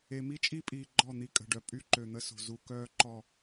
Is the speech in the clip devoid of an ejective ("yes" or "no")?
no